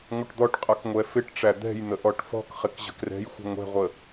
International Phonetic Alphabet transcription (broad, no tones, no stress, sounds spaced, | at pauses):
ŋʷ ə ʈ d̪ ɔ ʈ qʼ ʌ k ŋʷ ɛ f ɪ ʈ ʈ͡ʂ æ d̪ ɛ̤ j n̪ ə ʔ ɔ ʈ f ɔ̤ k χ ɪ k ʑ ə̤ k r ɛ̤ j xʷ ə̤ ŋʷ ɛ̤ ʁʷ ə